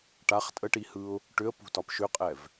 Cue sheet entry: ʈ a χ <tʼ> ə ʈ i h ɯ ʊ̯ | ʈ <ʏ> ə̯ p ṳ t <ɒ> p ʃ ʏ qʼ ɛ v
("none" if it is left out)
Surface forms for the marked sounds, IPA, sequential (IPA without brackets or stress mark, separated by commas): tʼ, ʏ, ɒ